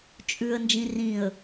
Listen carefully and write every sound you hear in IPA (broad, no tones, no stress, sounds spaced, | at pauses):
t͡ʃʼ ʉ ə̯ n d͡ʒ ĩ r ĩ ə̯